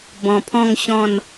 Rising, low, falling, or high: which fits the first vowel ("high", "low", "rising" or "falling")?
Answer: low